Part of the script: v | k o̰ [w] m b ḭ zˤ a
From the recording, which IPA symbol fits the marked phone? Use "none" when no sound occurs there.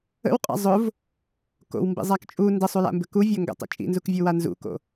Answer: w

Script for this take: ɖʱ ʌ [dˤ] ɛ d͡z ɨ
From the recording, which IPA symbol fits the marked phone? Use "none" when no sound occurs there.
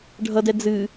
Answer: d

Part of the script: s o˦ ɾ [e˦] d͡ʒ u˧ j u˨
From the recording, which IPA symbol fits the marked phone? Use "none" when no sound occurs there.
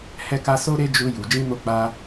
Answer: e˦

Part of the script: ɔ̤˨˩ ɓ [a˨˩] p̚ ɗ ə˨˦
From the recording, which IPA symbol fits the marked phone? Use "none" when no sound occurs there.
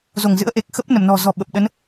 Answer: ə˨˩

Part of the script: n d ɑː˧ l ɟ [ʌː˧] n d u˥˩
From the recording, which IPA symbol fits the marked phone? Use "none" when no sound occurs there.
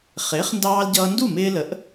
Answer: ʌː˧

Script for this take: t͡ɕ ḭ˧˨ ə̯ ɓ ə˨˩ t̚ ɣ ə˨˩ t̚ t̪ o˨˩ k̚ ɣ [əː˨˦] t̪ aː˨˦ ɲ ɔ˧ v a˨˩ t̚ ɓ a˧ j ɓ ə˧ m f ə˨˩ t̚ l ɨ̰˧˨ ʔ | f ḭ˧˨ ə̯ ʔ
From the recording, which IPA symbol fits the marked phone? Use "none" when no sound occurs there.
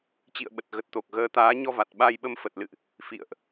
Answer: əː˨˦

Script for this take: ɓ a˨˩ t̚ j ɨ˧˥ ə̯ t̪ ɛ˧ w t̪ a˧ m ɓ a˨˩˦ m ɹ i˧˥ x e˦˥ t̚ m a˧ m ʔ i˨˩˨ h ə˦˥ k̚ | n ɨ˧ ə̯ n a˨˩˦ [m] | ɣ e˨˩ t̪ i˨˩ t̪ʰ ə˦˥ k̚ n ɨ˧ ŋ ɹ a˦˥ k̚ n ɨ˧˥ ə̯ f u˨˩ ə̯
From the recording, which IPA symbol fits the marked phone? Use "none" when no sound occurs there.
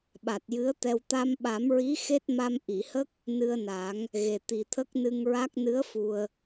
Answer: ŋ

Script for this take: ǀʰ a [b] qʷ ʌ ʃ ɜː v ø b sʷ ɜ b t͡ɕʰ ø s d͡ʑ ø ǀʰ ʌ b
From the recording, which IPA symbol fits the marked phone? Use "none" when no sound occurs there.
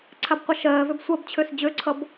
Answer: b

